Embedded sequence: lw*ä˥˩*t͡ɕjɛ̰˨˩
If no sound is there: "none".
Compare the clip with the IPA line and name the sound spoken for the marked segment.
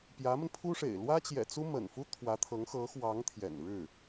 ä˥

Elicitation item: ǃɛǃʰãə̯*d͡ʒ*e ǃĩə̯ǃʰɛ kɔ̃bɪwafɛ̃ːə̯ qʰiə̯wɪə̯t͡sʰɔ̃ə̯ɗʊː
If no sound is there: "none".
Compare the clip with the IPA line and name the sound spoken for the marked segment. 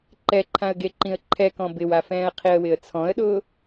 ɡ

